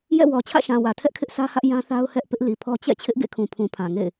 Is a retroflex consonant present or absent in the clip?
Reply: absent